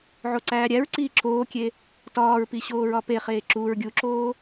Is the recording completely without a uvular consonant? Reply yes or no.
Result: no